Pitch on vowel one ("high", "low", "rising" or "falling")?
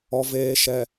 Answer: low